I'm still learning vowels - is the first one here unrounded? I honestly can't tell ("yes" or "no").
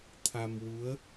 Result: yes